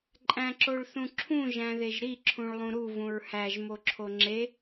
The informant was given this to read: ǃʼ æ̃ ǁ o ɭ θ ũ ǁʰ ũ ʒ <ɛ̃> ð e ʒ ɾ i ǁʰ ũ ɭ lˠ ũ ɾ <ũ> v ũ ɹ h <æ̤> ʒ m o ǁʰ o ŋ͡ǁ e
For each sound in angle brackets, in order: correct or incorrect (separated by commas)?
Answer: incorrect, incorrect, incorrect